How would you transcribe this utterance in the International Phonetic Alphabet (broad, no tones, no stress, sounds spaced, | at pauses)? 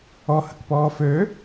ɔ h ə̤ k p ɔː f ø